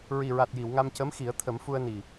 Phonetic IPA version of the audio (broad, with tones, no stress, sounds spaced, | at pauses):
ɹ i˨˩ ɹ a˨˩ t̚ j i˨˩˨ w ŋ a˧ m c ə˧˥ m x i˨˩˦ ə̯ t̪ʰ ə˨˩˦ m f u˧ ə̯ n i˨˩